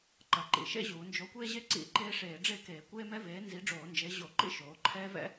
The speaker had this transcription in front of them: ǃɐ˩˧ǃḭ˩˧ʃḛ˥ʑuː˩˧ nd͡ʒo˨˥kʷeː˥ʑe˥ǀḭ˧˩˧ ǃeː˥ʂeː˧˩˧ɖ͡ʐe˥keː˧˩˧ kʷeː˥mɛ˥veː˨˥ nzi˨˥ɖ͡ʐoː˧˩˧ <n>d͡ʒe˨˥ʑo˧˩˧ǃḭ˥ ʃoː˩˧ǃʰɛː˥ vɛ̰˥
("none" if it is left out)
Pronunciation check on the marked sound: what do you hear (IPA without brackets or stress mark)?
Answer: n